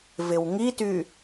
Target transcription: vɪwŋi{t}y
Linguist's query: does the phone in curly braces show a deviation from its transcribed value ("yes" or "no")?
no